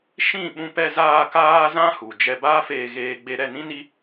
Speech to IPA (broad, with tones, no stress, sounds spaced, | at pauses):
ʃ ĩ˦˨ ɓ ũ˧ p ɛ˧ z aː˧ k aː˦ z ã˦ h u˨ d͡ʒ ɛ˧ b aː˦ f eː˧ ɣ eː˧ ɡ͡b e˧ ɾ ɛ˦˨ n ĩ˦ n i˦